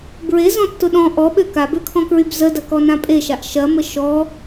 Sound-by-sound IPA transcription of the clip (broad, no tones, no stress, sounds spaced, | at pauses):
b ɹ e z ɔ̃ tː ʊ ɗ ɔ̃ ʔ ɔ ɓ ø k a b ø kʰ ɔ̃ k ɹ y b z ə d ɐ k ɔ n ã pʼ e ʃ a ʔ ʃ ɐ m ə ʃ ɔ